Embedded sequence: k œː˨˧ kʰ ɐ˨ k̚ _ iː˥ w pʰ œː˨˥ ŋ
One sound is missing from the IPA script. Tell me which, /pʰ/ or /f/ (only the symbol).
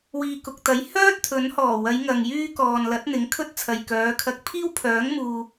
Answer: pʰ